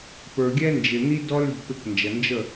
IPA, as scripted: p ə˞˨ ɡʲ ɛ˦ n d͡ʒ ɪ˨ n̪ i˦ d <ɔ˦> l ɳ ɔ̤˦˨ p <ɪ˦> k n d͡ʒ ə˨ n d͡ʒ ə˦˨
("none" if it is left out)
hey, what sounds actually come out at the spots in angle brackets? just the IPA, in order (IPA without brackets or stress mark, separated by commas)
ɔ˦, ɪ˦˨